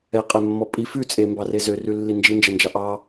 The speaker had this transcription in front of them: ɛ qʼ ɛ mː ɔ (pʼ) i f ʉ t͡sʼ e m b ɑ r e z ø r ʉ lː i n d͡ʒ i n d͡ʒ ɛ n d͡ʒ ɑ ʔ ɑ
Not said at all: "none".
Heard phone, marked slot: pʼ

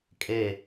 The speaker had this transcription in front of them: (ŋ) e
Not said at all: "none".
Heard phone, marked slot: kʼ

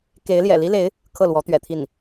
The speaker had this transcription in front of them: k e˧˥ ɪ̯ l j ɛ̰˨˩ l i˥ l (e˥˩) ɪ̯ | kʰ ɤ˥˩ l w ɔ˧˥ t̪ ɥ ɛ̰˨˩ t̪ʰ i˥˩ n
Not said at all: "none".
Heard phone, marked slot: e˧˥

